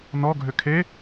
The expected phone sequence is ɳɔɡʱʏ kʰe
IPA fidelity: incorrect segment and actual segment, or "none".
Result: ɳ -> n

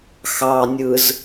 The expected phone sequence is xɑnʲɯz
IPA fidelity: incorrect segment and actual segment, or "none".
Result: none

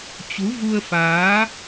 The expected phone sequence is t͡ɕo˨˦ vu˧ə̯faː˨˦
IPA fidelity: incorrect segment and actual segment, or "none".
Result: o˨˦ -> u˨˦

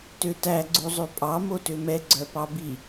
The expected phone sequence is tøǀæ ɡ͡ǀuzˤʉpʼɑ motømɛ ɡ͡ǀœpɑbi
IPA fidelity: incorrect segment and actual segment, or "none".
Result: ǀ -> t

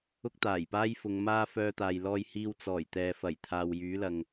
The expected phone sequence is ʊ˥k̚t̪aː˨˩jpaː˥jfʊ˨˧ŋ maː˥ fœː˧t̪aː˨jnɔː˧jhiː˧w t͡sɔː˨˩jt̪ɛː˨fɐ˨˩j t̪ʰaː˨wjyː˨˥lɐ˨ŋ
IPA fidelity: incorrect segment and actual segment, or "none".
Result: n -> l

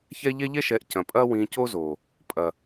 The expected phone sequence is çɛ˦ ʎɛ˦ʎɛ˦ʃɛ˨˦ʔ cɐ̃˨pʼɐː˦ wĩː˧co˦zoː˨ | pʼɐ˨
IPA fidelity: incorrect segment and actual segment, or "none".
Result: none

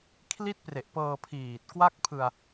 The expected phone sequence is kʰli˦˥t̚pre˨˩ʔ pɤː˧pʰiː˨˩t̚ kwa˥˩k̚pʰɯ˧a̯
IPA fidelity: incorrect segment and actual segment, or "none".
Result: none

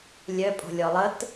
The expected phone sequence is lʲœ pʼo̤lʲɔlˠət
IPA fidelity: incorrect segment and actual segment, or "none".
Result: none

